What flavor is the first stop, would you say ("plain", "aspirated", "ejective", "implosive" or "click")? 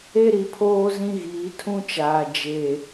aspirated